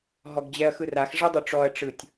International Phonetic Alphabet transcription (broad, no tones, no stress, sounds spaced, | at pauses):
ɦ ɔ ɡ d͡ʑ ɛ ɐ̯ x ɯ r a x ʐ ɛ dˤ u ʈ͡ʂ ɔ ɐ̯ ʈ͡ʂ ɯ tʲ